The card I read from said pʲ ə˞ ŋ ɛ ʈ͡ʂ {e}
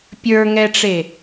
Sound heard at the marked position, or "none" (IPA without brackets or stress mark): e